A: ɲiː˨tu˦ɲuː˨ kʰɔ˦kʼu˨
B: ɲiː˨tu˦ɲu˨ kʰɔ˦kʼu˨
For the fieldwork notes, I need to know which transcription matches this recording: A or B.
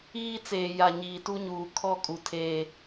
A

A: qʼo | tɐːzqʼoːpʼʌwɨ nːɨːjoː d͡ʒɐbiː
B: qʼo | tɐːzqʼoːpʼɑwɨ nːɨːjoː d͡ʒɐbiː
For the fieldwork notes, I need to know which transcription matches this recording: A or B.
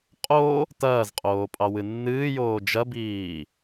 B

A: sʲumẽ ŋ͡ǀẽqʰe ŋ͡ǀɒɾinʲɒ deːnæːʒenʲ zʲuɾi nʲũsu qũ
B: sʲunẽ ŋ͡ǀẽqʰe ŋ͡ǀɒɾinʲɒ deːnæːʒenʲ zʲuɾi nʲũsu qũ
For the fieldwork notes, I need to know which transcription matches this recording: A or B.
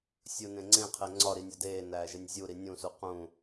B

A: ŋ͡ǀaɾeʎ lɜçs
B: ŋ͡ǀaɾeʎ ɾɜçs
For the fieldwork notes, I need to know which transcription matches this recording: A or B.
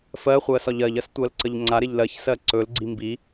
A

